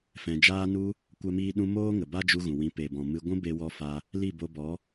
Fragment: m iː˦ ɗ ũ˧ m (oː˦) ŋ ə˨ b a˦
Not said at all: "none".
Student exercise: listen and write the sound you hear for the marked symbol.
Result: oː˦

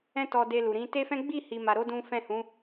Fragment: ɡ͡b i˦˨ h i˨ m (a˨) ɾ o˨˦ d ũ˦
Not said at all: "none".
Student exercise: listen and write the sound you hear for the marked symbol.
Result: a˨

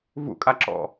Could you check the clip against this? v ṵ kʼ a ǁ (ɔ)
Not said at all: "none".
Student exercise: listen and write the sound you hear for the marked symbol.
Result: ɔ̰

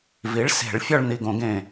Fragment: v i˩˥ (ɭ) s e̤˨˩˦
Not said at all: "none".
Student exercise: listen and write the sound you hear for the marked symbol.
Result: ɭ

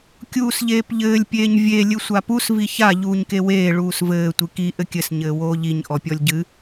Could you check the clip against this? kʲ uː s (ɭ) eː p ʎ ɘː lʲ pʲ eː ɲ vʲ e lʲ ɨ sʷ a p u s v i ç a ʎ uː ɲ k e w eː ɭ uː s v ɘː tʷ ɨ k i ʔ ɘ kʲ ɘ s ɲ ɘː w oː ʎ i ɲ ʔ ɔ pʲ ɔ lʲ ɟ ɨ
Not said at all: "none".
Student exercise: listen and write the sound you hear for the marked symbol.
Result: ʎ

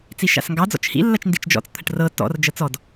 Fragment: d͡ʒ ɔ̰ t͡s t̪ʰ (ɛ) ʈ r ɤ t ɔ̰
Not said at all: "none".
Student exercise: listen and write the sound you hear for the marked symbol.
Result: ə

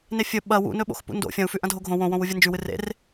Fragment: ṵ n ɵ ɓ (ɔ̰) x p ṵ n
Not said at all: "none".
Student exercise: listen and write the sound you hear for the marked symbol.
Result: o̰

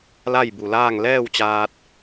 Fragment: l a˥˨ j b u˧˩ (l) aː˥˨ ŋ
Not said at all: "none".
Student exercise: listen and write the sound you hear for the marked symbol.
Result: l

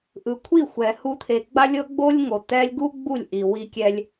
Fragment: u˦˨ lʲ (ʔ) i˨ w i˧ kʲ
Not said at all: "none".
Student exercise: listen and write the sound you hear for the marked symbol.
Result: ʔ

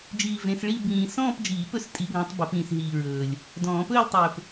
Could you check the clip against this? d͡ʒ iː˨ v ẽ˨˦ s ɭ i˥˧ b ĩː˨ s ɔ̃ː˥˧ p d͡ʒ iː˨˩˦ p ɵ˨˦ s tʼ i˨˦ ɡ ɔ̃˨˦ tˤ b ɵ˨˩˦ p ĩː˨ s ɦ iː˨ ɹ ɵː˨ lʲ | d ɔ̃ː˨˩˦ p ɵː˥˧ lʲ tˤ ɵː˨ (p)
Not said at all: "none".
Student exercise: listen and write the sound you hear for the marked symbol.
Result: p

